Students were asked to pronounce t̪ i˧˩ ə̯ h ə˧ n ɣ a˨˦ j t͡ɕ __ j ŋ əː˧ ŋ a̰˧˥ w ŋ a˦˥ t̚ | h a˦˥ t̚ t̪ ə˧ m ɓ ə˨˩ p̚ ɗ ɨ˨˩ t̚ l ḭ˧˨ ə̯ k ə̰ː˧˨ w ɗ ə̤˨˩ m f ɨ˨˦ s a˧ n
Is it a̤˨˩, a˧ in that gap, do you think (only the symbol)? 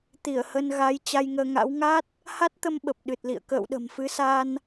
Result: a˧